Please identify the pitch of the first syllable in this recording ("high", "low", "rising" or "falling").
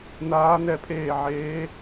rising